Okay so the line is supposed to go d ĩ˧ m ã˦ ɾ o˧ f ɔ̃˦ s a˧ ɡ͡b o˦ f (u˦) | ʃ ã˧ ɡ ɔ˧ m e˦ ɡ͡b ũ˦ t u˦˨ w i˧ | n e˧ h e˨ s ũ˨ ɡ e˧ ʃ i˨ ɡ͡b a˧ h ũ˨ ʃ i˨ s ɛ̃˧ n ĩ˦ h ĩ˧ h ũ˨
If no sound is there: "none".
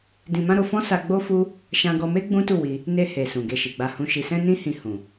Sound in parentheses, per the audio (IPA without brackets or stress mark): u˦